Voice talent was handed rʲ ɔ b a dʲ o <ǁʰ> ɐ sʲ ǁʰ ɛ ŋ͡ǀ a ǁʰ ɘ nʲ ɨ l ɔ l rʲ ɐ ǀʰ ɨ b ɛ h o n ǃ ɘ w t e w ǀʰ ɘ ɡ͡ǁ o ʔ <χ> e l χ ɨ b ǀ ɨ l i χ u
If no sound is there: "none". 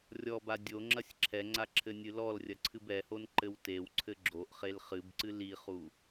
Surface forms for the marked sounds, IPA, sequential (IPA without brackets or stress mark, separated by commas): ŋ͡ǁ, χ